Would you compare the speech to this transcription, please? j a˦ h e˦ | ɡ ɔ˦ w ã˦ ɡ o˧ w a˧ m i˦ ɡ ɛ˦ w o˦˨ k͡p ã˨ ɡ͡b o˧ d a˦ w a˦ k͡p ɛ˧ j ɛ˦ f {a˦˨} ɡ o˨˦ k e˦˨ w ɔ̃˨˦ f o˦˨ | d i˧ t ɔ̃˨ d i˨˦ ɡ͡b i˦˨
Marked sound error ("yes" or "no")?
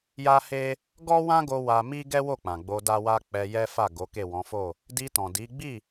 no